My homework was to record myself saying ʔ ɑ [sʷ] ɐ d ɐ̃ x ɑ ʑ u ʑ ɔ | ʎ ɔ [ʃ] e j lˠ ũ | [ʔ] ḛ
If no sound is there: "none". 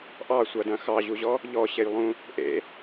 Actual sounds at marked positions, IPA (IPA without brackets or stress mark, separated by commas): sʷ, ɕ, ʔ